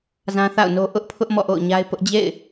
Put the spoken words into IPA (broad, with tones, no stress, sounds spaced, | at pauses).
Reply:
z ã˦ θ a̰˦˨ ʊ̯ n o˦ ʔ ʊ˦ ʔ pʰ ʊ˦ ʔ m ɔ̰˦˨ ʔ o̰˦˨ ʊ̯ ɲ a˦ ɪ̯ p ʊ˦ ʔ d͡ʑ ḛ˦˨ ɪ̯